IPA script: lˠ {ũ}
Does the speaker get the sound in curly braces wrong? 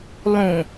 no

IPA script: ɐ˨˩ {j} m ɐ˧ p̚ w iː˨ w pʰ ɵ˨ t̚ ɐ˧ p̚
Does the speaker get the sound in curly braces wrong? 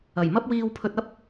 no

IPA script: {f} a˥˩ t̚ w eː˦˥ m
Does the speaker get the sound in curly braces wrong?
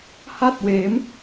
yes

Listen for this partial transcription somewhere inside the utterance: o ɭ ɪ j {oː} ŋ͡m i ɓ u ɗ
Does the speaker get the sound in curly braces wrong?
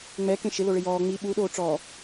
yes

